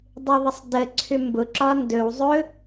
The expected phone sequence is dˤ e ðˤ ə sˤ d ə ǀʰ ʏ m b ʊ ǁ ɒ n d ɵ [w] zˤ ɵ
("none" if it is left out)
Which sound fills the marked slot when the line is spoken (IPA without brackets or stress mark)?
w